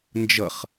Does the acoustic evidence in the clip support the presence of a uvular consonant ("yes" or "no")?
yes